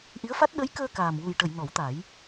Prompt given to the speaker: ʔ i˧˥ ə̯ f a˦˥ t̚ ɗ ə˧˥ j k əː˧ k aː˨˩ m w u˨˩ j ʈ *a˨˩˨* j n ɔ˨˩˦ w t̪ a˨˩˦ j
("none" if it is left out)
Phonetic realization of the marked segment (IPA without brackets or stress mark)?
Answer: ə˨˩˨